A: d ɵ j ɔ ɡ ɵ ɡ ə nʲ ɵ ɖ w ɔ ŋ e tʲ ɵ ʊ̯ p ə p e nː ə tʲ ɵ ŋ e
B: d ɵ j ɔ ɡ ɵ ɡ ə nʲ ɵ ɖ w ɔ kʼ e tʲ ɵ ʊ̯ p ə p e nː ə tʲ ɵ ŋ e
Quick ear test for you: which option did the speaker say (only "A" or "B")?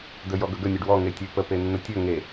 A